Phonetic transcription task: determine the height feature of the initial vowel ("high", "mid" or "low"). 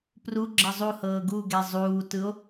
high